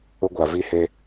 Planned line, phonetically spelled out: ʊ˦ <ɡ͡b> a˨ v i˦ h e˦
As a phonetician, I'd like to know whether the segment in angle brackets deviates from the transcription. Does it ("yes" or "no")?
yes